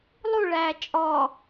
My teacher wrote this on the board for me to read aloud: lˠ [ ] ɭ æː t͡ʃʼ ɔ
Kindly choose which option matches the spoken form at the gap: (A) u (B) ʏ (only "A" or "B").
A